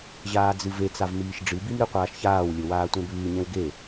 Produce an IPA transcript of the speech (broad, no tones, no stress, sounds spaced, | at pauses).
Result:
ʑ aː d͡z ɨ v e t͡s a v m iː ʃ ɖ͡ʐ ɨ b i m ɾ ɨ qʷ aː ʃ ç aː w lʲ ɵ w aː tʷ ẽ b ʉː ɲ ẽ w ɡ e